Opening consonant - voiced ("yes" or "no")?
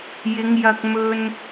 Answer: yes